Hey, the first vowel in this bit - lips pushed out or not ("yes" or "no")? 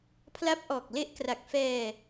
no